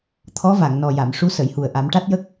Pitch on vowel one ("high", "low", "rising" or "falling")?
rising